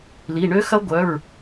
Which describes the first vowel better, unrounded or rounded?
unrounded